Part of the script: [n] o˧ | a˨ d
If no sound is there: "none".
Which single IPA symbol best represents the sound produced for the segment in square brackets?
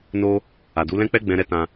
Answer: n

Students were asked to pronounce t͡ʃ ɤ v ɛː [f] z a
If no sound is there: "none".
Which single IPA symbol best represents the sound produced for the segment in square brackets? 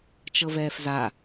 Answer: f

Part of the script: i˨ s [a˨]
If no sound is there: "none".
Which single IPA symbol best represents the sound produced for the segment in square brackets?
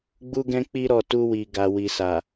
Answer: a˨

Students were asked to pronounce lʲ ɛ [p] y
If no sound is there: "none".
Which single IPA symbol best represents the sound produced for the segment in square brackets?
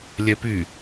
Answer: p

